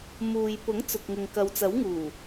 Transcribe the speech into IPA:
m uː˨ j p ʊ˨˥ ŋ t͡s ʊ˨ k̚ ŋ ɪ˨ ŋ k ɐ˨˧ w t͡s ɐ˨˥ w ŋ uː˨˩

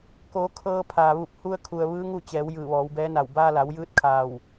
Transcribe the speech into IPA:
k oː˩˧ kʰ ɤː˧ pʰ aː˩ ʋ u˧˩ p̚ h u˧ ə̯ kʰ u˩ ə̯ ʋ ɯː˧˥ ŋ u˥˨ t͡ɕ ɛː˩˧ w j ɯː˧˩ ʋ ɔː˩˧ w b ɛː˧˥ n a˧˩ w b aː˧ l a˩˧ w j ɯː˧˥ t̚ kʰ aː˧˩ w

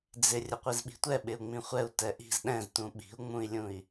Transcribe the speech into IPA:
d͡z ɪ rʲ ə qʷ i z ɓ i̤ tʷ ɛ ɓ ɪ u̯ ŋ͡m ĩ χʷ ɛ u̯ t ɛ ʔ i̤ z ɗ ɛ̃ z t ũ ɓ i̤ u̯ ŋ͡m ũ i̯ lʲ ũ i̯

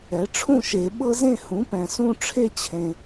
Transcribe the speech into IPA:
ɛ˩˥ ʈ͡ʂʰ ũ˥˨ ʃ e˨˩˦ ɓ ɤ˦ z ẽ˥˨ h ũ˩˥ p ɛ̃˨ s ũ˥˨ ʈ͡ʂʰ e˦ t͡ɕʰ ẽ˨

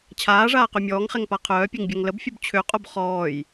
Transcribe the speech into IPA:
t͡ɕʰ aː ʐ aː q ø mʲ ɔː ŋ χ ɛ ŋ p a qʰ œː pʲ e ŋ bʲ œ ŋ l ə b fʲ u b t͡ɕʰ ø qʼ o b χ ɔː j

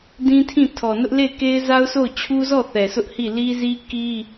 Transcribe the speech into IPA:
d ĩ˦ tʰ ĩ˦˨ tʰ ɔ˨ n ʊ˦ ʔ l e˦˨ ɪ̯ k e˦ ɪ̯ z a˦ ʊ̯ sʰ o˦˨ ʊ̯ t͡ɕʰ u˦ z ɔ˦˨ θ ɛ˨ sʰ ʊ˦ ʔ h i˦˨ l i˦ z i˦ k i˦

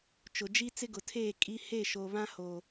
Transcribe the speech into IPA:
t͡ʃ ʊ˨ d͡ʒ i˦ t͡s ɪ˦ ɡ ʊ˨ tʰ eː˦˨ kʼ i˦ h e˦˨ ʃ o˨ β ã˦ h o˨

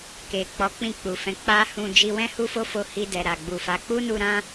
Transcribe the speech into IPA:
k e˨ k͡p ɔ˨˦ k͡p ĩ˦˨ k͡p u˨ f ɛ̃˨˦ k͡p a˦ h ũ˧ d͡ʒ i˧ w ɛ̃˦ h u˦ f o˦ f o˧ h i˧ d ɛ˨ ɾ a˨ ɡ͡b u˨ f a˨˦ k͡p u˦ n u˧ ɾ ã˦

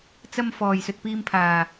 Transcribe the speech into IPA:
t͡s ɐ˧ m f ɔː˨ j s ɵ˧ t̚ p iː˧ m pʰ aː˨

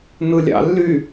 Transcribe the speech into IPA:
n ɯ lʲ ɑ̰ lː y

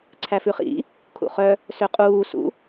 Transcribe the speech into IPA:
ǀʰ æ f ʉ χ ḭ | kʰ ṵ χ œ | s ø qʼ uː s ṵ

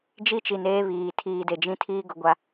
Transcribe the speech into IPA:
d͡ʒ i˦ t͡ʃ i˨ n eː˦ β iː˨ tʰ iː˨ d e˨ d͡ʒ ĩ˦ tʰ iː˦ ɡ ʊ˨ ɡʷ a˦

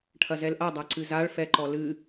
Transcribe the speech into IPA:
ʈʰ ɐ z ɛ l ʔ ɐ dˤ a ǀ ɨ z a ɭ f ɛ ǃ ɔ l ɨ

